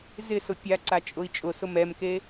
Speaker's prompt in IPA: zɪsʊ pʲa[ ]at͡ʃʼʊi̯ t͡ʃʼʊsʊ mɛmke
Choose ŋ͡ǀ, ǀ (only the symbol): ǀ